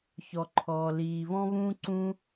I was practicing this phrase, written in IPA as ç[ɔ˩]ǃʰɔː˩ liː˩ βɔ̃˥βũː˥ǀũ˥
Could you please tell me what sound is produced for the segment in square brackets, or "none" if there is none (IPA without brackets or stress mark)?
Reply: ɔ˩